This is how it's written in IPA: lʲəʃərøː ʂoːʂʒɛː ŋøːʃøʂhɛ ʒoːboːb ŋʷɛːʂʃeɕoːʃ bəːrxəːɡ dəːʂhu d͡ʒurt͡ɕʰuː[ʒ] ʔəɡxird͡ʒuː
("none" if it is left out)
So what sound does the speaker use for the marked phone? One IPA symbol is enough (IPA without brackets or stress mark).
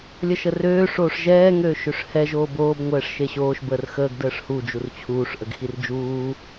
ʂ